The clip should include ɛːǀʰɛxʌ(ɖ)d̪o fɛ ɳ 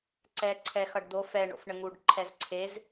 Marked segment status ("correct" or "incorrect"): correct